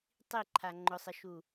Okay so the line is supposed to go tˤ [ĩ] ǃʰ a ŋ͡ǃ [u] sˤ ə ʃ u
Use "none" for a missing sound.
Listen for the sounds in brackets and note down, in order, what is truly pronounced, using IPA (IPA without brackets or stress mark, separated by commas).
i, ʊ